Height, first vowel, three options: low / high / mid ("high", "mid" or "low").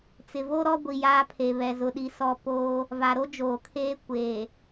high